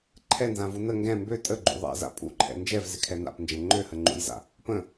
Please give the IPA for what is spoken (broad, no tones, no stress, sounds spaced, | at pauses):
ǃʰ ɛ n z ã v u n ə ŋ ɡ ɛ̃ m b ø tʼ ə ɡ͡ǃ ṵ ðˤ ɛ̰ z a̰ pʼ ṵ ǃʰ ɛ̰ n d͡ʒ ɛ v z ɪ kʰ ɛ n a̰ p n d͡ʒ ɛ̃ ŋ͡ǃ ø h ə ŋ͡ǃ ṵ j z a̰ | p ə̃